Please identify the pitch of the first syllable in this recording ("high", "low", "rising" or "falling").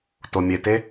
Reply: low